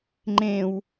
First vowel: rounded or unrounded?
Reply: unrounded